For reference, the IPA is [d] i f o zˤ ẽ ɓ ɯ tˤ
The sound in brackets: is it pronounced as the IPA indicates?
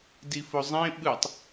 yes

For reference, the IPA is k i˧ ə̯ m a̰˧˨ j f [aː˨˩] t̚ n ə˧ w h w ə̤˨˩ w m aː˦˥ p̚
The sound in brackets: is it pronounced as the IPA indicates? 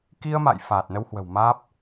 yes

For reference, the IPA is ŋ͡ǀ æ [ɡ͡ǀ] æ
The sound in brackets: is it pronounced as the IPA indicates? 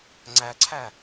no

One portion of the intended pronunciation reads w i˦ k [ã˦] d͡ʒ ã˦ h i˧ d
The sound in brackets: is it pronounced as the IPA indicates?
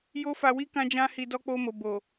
yes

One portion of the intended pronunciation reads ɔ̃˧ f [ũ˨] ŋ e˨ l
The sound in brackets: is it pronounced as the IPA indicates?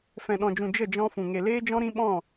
yes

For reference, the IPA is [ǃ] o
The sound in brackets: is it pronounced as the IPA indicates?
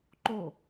yes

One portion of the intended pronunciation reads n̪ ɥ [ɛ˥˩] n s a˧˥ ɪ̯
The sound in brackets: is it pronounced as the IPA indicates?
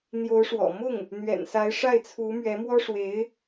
no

